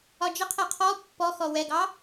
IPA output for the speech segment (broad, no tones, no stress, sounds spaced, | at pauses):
ɒ d͡ʒ ə qʰ ɛ qʰ ɔ pː ɔ x ɔ w ɛ ɡ ɑ